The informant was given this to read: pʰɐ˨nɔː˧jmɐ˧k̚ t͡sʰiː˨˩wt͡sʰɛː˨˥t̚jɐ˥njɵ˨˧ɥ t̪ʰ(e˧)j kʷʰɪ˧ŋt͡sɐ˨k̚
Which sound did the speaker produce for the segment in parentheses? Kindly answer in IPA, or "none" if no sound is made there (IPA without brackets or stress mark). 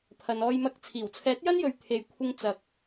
e˧